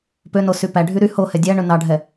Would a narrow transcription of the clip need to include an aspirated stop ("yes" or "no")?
no